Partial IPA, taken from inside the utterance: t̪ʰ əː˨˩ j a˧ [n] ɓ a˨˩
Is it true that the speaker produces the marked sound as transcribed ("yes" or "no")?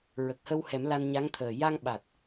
no